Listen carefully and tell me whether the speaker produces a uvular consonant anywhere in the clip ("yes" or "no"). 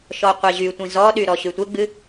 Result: yes